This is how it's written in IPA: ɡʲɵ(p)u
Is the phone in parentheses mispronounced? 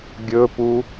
no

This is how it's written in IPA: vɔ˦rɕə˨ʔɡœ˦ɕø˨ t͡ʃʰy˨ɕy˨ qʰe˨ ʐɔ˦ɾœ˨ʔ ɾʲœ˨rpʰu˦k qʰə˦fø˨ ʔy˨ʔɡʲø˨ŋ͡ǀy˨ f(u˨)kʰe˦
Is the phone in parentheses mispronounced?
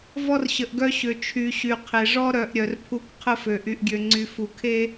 no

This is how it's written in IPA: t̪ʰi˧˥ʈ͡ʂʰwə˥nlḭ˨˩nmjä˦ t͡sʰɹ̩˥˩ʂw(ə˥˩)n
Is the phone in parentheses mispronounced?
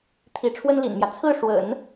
yes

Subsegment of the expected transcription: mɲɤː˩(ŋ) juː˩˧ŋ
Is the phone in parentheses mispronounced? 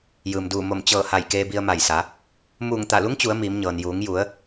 yes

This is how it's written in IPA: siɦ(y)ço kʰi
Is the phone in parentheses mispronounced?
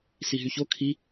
no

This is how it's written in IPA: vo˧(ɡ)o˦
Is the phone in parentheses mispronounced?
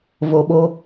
yes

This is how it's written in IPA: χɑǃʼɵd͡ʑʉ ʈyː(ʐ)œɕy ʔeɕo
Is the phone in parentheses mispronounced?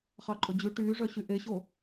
no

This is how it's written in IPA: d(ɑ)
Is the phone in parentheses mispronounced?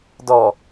yes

